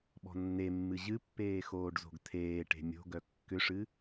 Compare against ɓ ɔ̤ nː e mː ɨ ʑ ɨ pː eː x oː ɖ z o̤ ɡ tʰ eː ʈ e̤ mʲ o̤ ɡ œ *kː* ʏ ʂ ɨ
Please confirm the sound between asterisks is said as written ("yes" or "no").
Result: yes